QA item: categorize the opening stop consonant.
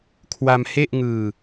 aspirated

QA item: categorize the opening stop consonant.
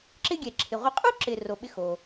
click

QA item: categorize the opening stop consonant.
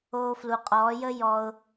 ejective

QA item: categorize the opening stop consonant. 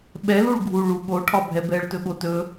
implosive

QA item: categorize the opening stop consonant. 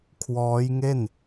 aspirated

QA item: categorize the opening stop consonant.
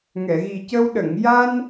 plain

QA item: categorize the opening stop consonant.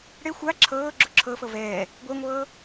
click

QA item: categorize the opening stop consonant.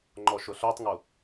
click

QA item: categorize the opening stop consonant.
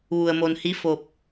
plain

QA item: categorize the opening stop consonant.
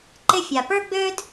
click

